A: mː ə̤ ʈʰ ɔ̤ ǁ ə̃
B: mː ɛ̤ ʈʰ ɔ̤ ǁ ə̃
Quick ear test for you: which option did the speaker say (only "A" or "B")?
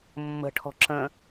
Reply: A